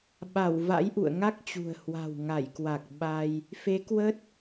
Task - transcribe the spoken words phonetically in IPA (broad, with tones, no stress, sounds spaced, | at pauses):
ɓ a˧˩ w v a̰˧˥ j ʔ ṵ˧˨ ə̯ ŋ a˦˥ k̚ t͡ɕ ṳ˨˩ ə̯ h w a̤˨˩ w ŋ a˧˩ j k w a˨˩ k̚ ɓ a˧ j | f e˨˦ k w ə˦˥ t̚